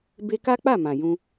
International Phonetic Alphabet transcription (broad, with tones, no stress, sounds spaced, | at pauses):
b e˧ k a˦ k͡p a˦˨ m ã˨ j ũ˧